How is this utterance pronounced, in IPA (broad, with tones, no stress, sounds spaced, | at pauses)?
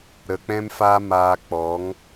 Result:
ɾ ə˨ k͡p ɛ̃˦ m f aː˦ m aː˧ k͡p ɔ˨˦ ŋ